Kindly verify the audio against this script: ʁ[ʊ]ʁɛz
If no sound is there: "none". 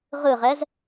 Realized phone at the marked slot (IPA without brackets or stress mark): ɯ